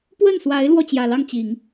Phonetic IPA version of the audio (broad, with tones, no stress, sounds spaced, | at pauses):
p w ə˥˩ n s w a˧˥ ɪ̯ l w ɔ˥˩ t͡ɕ j ä˨˩ l ɑ˥˩ ŋ t͡ɕ i˨˩˦ ŋ